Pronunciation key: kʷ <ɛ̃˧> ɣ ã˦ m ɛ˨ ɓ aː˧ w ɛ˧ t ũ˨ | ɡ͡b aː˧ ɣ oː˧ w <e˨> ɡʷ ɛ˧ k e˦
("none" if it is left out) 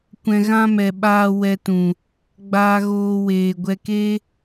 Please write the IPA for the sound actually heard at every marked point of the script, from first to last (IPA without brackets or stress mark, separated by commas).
ɛ̃˧, eː˨